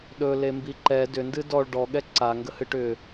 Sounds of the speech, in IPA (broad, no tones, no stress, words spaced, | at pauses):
ɗɵlembi ǃɛ dʏndɨ dɔɭ ɖɔɠɛ ǀaŋɡəhɨʈ ʏ